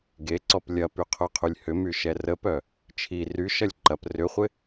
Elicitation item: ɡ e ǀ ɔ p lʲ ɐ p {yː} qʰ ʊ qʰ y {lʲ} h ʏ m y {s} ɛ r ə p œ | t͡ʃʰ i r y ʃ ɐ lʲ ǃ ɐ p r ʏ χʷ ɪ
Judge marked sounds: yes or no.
no, yes, no

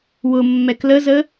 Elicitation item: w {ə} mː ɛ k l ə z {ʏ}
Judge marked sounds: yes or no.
no, no

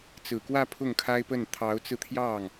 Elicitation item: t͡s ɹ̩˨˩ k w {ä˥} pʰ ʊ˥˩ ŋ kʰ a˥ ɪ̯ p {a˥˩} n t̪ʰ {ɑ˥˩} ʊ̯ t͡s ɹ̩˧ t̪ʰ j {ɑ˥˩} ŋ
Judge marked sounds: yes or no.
no, no, no, yes

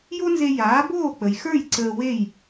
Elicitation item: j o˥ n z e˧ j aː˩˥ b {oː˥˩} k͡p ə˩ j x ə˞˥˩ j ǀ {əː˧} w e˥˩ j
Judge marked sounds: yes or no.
yes, yes

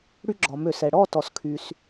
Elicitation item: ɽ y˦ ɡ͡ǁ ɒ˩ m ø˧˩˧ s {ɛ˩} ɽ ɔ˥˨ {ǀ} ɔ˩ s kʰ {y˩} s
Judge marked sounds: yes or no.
yes, no, yes

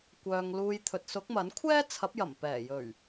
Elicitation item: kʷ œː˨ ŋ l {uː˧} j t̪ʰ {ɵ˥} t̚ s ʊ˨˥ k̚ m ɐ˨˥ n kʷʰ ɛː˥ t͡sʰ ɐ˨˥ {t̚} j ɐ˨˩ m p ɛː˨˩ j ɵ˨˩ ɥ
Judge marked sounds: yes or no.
yes, no, no

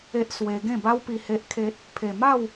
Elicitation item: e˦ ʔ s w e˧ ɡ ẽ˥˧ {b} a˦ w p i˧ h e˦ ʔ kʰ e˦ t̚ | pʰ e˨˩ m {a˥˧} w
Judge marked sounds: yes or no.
yes, yes

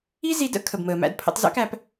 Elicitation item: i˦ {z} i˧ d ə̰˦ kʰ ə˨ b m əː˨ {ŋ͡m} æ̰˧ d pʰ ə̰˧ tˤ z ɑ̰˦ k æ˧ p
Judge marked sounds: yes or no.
yes, no

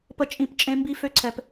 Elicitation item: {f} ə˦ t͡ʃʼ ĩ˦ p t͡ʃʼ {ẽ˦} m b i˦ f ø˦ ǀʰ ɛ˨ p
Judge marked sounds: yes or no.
no, yes

